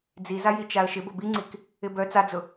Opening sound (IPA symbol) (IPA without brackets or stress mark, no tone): d͡z